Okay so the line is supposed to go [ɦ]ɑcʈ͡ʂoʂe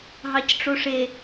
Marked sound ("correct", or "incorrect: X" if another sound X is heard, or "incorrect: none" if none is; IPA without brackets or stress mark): correct